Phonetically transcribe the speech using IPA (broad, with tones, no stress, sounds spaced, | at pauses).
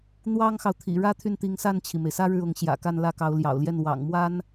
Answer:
n̪ w ɑ˥ ŋ x ɑ˨ ʊ̯ t̪ʰ ḭ˨˩ ɻ ä˥ t̪ʰ y˥˩ n t̪ i˧˥ ŋ s a˥˩ n t͡ɕʰ i˩ m e˩ ɪ̯ s ä˥ ɻ ɻ̩˥˩ ʊ˧˥ ŋ ɕ j ä̰˨˩ k a˥˧ n l ä˥˩ k ɑ˧˥ ʊ̯ l j ɑ̰˨˩ ʊ̯ l j ɛ˥˩ n w ɑ̰˨˩ ŋ m w a˥ n